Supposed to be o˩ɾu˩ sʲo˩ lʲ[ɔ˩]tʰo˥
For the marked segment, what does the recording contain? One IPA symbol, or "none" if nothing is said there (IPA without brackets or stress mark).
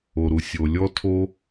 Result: ɔ˥